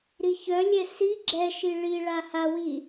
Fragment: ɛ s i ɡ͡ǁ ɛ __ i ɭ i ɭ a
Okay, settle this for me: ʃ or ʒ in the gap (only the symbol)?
ʃ